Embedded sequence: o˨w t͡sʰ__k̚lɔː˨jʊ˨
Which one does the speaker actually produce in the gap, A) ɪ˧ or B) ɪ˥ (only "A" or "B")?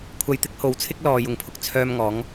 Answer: B